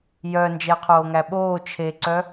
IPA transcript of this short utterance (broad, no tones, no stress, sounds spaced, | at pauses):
j œ n d͡ʒ ɛ qʰ oː ŋ æ ɓ oː t͡ʃʰ e ǀ œ